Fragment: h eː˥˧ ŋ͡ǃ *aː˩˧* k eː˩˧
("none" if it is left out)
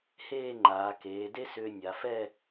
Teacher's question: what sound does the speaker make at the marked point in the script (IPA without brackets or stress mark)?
aː˩˧